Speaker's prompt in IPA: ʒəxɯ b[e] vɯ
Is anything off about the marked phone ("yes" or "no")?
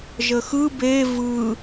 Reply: no